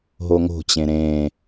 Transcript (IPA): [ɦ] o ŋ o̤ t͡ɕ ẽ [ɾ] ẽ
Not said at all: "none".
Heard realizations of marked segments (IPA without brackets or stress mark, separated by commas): ɦ, ɾ